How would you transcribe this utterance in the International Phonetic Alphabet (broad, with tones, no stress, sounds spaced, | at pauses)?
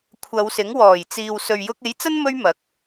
kʷʰ ɐ˨˧ w s ɪ˨˥ ŋ w ɔː˨˩ j t͡s iː˨ w s ɵ˨ ɥ j ʊ˧ k̚ e˨˥ j t͡s ɐ˥ n m ɵ˥ ɥ m ɐ˨˥ k̚